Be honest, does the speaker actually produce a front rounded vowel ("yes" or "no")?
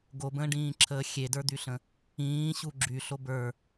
yes